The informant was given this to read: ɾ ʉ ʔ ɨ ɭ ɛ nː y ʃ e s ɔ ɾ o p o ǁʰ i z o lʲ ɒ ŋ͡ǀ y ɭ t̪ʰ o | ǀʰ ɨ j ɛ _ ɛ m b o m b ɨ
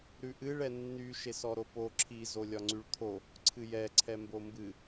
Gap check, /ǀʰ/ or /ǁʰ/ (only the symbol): ǀʰ